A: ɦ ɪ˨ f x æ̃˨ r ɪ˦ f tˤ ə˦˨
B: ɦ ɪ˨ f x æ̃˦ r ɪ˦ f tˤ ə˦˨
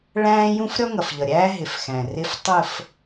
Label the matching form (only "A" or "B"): A